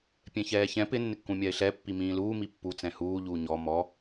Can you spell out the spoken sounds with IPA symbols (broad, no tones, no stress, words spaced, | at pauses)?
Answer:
pʲɛ̃çɛːçɛ̃ pɪ nːɪkːũmʲaɪ̯ɬɛ pːimĩːluː mipːu t͡sɛ̃huː ʎuːɲɔ mɔ